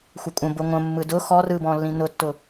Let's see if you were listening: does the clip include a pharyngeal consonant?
no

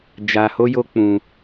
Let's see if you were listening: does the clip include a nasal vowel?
yes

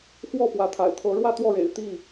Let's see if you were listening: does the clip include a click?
no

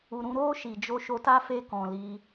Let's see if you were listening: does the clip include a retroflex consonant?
no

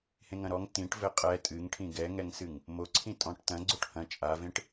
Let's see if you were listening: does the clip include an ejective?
yes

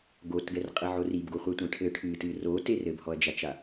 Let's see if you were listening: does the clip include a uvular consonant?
yes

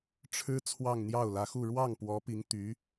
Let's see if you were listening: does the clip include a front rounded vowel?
yes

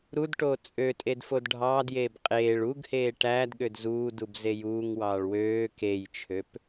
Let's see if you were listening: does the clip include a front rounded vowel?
yes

